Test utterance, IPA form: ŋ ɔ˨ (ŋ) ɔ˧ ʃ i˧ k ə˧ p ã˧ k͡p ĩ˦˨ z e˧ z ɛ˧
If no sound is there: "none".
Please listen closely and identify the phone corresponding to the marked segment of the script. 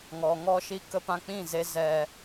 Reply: ŋ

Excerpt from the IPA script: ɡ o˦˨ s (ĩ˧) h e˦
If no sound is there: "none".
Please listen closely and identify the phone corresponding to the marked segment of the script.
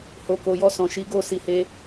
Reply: i˧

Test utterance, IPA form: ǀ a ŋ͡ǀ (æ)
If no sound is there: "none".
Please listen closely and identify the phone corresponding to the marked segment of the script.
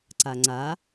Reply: a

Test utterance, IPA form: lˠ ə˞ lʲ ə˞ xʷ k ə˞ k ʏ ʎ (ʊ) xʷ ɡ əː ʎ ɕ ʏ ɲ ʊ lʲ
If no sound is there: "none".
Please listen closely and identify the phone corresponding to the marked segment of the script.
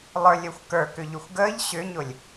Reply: ʊ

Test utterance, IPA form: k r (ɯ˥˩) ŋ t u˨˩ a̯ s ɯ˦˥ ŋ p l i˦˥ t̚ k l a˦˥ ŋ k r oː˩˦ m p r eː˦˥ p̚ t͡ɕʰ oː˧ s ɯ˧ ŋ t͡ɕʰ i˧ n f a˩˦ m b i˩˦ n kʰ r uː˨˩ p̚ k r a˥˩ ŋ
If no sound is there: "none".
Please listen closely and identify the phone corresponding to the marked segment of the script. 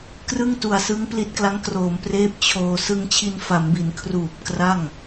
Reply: ɯ˥˩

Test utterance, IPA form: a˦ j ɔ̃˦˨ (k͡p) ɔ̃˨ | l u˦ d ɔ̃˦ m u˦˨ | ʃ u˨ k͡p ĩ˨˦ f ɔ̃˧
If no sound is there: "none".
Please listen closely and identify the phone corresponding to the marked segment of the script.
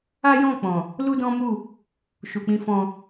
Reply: k͡p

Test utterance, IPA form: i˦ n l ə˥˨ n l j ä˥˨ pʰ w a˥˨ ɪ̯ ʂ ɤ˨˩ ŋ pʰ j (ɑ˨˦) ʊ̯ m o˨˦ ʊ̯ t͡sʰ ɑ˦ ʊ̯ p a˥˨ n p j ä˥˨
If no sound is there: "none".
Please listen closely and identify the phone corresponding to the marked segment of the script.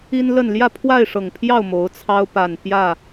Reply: ɑ˥˨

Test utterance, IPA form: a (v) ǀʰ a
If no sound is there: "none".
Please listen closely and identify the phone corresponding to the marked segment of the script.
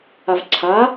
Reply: v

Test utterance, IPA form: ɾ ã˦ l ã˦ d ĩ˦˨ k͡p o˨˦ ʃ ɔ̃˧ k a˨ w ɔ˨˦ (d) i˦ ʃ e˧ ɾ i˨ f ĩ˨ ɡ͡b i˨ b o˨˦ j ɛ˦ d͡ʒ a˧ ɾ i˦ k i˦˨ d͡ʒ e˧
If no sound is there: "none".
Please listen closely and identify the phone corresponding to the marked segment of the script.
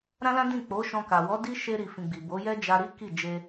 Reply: d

